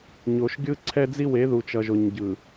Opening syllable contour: low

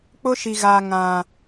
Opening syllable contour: high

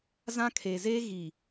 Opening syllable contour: high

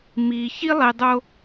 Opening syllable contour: low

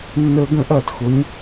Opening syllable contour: high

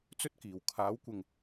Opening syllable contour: high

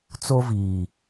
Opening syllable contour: high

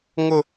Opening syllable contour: high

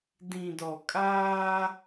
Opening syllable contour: low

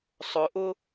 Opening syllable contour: low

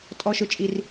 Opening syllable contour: high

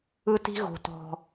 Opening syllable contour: high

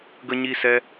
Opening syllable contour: high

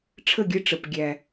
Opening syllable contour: falling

